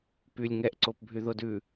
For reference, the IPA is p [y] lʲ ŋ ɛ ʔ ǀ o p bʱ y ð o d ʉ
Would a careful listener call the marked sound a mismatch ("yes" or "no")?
no